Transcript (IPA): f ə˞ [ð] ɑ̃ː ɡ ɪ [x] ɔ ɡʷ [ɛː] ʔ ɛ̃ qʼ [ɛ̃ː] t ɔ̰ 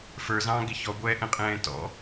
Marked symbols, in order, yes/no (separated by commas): no, no, yes, yes